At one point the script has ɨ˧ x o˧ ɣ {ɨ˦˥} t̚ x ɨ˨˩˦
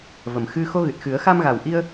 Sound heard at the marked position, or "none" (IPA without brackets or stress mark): ɨ˨˩